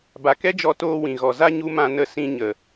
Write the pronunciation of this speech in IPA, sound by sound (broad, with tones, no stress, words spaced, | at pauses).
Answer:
ba˨kɛ˦d͡ʒɔ˧ toː˧wĩ˨ɣɔ˨ za˧ ɲu˦mã˧nə˦˨ sĩ˧ ɲə˨